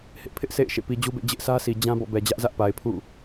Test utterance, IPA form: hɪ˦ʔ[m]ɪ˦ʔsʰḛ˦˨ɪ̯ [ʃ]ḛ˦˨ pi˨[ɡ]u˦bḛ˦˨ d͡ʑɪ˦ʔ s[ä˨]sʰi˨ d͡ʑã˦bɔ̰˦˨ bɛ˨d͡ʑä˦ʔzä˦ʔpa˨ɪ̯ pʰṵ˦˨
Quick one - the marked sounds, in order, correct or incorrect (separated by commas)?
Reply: incorrect, correct, incorrect, incorrect